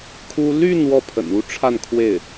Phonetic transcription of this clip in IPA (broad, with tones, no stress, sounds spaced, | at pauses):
kʰ u˥ l y˥˧ n w ɔ˥˩ pʰ ə̰˨˩ n u˥ ʈ͡ʂʰ a˥˧ n kʰ w e˥˩ ɪ̯